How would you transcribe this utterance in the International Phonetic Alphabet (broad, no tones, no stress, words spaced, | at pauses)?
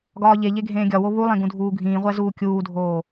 ɡɒːʎeʎe ɡʱẽːɡʲɒwo βulˠẽ ɡũdʱuːɡʱĩːʁʷæ zuːkʲuːdʱoː